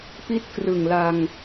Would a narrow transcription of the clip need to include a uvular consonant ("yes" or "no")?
no